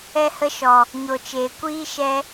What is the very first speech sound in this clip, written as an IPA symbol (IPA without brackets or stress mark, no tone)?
ɛ